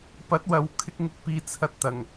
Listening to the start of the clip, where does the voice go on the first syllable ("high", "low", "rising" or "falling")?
rising